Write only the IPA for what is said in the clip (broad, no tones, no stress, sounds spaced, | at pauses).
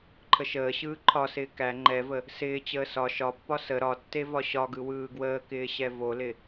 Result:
ǃʰ ə ʃ əː ɕ ɯː ǃʰ ɒ s ɪː k æ ŋ͡ǃ ɛ v ə | s ɪː t͡ɕ əː s ɒ ʃ ɒ pː ɒ s ə ɾ ɒ tː e v ɒ ɕ ɒ ɡ ɯ w ɯː ɡ w əː k ɪː ɕ ɛ v o l ɪ